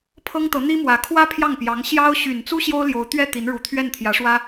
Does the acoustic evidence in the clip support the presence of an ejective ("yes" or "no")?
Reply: no